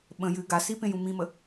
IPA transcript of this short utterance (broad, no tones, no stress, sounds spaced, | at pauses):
ɓ ə̃ j ɨ ɡ a s i p ẽ j ũ m ĩ m ə